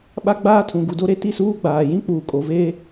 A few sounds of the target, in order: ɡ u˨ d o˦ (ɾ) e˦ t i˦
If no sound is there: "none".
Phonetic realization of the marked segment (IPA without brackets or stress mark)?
ɾ